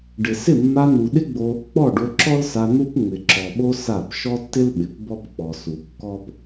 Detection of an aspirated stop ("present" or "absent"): absent